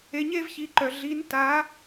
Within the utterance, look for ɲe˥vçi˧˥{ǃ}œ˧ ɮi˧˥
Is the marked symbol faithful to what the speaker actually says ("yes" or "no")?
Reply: yes